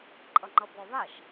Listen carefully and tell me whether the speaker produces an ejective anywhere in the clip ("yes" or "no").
yes